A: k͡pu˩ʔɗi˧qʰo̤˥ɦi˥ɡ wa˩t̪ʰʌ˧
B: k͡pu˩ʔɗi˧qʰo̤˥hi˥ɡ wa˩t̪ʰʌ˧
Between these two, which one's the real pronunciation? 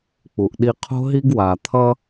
A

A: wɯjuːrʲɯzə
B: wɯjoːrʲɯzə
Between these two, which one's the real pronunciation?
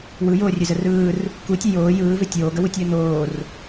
B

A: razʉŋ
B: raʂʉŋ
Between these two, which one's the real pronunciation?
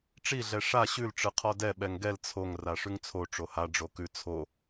B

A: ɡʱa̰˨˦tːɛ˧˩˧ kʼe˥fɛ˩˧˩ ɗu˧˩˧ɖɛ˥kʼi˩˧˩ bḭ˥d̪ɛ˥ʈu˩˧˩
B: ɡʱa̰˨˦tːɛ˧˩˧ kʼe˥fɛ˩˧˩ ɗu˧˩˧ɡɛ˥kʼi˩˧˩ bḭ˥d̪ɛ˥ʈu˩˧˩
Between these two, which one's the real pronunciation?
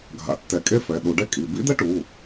A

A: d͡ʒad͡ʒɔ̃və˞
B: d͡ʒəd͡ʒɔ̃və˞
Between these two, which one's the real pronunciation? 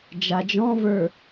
A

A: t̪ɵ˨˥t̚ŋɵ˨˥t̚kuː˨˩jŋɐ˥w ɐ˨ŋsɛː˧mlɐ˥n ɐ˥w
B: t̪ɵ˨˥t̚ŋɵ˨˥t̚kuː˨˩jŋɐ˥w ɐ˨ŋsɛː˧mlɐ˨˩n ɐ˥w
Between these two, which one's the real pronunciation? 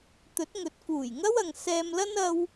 A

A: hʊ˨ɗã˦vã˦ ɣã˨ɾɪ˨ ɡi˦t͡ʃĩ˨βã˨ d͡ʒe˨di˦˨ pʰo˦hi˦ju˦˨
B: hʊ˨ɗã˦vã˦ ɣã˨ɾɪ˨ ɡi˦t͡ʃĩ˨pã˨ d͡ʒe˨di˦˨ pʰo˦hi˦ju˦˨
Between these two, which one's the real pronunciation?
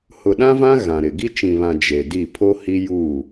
A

